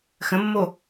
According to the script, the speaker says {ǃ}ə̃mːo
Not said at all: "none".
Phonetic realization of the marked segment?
x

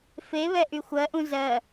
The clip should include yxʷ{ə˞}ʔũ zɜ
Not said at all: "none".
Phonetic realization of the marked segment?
ɜ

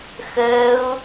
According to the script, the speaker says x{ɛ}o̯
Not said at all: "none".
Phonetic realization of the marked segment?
ɜ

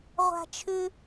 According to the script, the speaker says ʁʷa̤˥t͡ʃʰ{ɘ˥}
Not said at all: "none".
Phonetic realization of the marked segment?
ʉ˥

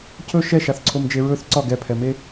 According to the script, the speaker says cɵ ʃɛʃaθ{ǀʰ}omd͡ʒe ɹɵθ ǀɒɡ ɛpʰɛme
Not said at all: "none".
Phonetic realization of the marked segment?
ǀʰ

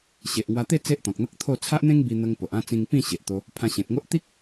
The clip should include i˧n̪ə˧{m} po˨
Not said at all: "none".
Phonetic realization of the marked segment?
ŋ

